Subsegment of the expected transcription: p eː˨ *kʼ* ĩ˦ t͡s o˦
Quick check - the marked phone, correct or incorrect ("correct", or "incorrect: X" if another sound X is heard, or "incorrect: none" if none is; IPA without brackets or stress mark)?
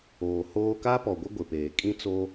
correct